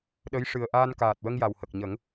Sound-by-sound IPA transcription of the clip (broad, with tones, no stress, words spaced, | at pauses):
ɗə˧˥j ʂɨ˨˩ə̯ʔaː˧n kaː˨˩t̚wə˧ŋ ja˨˩whə˨˩k̚ ɲə˨˩˦ŋ